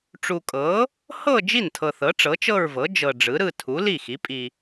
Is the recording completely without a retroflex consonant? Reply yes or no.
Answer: no